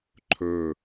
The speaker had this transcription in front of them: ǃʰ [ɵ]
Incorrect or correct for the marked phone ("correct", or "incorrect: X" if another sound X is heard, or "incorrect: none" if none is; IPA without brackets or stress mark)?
correct